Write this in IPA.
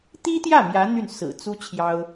t̪i˥t̪jä˥˩ mjä˧˥ n̪y˥˩n sɹ̩˨˩ t͡su˥ t͡ɕʰjɑ˥ʊ̯

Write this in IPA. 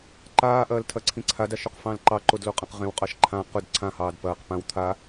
ǃaːʔɐːltʰɐǀʰĩ ǀʰadaʃʊqfɑ̃l ǃɑǃodloqʼɐ̃q ʁẽwqʼɑʃ ǃʰã qʊd ǀʰãhɑːd pɐːq pãw t̪ʰa

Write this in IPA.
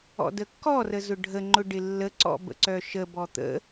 ɔ̰dəkːɔ rəzʊɖʱə ŋ͡ǃʊɖɪlːə ǀɔ̰bə̰ǀœʃə bɔt̪ə̰

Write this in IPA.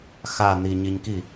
xa n̪i ɲiɲki

